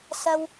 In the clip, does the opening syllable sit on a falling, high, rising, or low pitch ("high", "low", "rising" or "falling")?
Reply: low